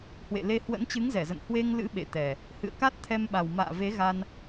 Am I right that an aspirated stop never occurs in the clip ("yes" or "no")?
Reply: no